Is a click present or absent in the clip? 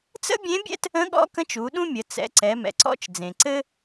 present